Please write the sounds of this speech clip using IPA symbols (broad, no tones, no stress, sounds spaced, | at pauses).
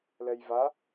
l ɛ j v a